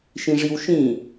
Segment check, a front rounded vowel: absent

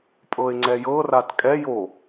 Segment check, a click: present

